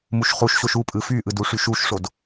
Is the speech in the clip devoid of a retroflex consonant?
no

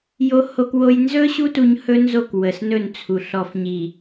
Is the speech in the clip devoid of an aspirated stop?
no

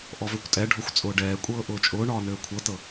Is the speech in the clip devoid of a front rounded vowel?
no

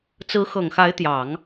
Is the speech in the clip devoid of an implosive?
yes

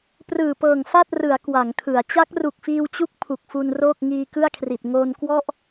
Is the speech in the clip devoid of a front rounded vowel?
yes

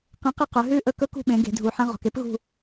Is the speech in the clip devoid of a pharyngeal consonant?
no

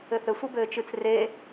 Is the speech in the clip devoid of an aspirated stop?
yes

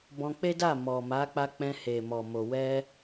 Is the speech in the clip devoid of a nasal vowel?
no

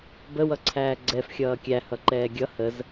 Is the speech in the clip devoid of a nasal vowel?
yes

